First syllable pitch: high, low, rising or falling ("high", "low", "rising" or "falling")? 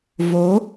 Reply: rising